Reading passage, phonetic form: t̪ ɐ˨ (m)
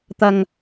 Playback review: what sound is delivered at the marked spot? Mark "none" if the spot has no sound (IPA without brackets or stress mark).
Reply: ŋ